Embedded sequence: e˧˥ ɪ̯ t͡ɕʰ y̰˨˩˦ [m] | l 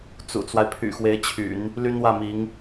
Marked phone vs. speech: incorrect: n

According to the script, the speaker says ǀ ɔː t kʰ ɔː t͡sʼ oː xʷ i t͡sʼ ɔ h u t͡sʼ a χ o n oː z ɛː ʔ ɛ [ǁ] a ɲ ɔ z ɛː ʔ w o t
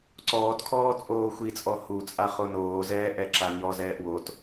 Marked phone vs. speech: correct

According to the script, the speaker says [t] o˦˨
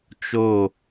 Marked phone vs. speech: incorrect: t͡ʃ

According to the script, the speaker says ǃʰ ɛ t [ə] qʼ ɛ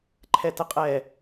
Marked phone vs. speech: correct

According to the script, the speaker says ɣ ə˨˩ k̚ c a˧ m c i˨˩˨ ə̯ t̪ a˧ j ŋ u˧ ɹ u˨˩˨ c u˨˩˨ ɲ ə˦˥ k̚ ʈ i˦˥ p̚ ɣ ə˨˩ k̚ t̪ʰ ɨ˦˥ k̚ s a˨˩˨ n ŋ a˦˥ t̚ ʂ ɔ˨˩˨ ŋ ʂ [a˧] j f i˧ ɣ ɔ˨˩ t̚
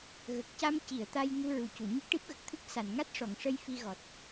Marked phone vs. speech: incorrect: ə˧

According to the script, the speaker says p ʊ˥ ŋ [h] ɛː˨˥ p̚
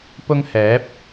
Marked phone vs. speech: correct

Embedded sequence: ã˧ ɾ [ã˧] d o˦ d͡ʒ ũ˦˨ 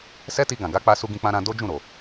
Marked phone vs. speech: correct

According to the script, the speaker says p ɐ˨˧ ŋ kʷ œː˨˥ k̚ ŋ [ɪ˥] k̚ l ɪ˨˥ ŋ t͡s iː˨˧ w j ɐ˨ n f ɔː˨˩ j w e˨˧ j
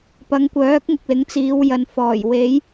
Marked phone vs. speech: incorrect: ɪ˨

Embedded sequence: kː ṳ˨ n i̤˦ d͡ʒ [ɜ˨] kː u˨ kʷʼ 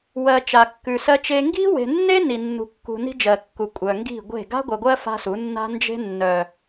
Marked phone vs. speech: correct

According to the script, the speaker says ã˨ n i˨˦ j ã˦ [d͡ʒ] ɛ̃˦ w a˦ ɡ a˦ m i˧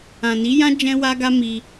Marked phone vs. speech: correct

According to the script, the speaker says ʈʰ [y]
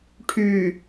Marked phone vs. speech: correct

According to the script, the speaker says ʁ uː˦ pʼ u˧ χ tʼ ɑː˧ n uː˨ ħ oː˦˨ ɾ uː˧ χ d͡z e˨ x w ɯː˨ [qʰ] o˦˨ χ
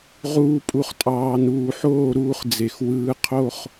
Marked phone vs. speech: correct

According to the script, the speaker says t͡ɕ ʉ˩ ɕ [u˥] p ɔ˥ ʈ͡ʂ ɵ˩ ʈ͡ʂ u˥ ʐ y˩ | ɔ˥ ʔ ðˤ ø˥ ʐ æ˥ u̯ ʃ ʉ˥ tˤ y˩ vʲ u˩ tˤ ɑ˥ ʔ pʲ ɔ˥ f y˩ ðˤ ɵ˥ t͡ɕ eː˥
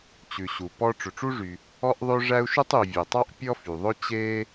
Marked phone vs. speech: incorrect: u˩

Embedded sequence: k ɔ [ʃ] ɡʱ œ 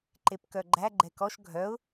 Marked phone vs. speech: correct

